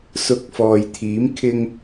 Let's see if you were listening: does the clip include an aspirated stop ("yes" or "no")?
yes